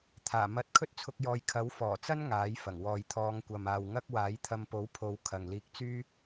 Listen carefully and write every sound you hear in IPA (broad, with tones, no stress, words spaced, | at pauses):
t̪ʰaː˨˩ mɐ˧t̚kʰɵ˥t̚t͡sʰʊ˧k̚jɔː˨j kʰɐ˨˥wfɔː˨˩t͡sɐ˥n ŋaː˨˥jfɐ˨˩ŋ wɔː˨jt̪ʰɔː˨˧ŋkʷɐ˨m aː˨wŋɐ˥k̚ waː˨˥jt̪ʰɐ˧mpo˨˥wpʰo˨˧w kʰɐ˨ŋliː˧k̚t͡syː˥